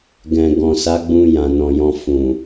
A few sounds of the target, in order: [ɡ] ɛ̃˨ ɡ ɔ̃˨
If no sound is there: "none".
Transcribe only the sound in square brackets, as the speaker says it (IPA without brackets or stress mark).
ɡ